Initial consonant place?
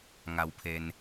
velar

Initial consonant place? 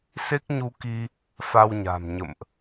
alveolar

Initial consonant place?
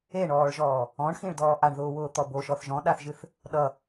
retroflex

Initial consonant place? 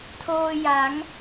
alveolar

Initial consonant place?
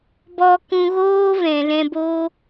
labial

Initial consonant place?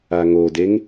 velar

